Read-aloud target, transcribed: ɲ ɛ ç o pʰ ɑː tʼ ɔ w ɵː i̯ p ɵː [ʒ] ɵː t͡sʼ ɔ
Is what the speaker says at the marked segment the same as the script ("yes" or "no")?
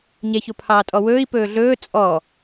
no